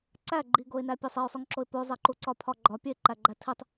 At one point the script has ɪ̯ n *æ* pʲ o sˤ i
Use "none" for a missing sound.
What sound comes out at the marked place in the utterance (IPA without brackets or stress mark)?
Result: æ